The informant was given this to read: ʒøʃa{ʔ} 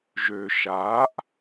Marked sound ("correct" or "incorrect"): correct